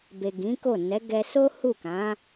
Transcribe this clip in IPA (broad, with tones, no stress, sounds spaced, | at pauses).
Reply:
b e˨ ɡ ĩ˨˦ k o˦˨ n ɛ˨˦ ɡ ɛ˧ s o˦ h u˦˨ k ã˨˦